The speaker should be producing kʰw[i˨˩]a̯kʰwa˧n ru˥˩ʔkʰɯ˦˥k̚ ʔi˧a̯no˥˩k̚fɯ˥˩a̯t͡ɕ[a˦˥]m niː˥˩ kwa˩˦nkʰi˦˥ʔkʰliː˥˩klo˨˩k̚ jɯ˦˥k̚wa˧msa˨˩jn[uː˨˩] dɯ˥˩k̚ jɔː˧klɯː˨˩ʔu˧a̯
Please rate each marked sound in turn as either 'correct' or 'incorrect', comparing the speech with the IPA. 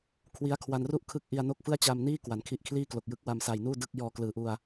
incorrect, incorrect, incorrect

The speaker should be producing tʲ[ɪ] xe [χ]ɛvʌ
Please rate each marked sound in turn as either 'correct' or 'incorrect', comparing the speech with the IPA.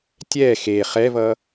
incorrect, correct

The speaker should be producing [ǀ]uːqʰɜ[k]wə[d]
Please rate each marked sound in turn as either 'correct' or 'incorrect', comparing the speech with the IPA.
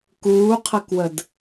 incorrect, correct, correct

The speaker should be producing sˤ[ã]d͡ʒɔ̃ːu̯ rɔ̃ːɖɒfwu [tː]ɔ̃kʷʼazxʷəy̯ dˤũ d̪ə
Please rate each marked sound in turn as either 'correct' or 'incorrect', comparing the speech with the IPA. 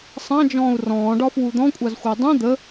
correct, incorrect

